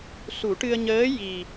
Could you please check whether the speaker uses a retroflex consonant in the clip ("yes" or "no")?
yes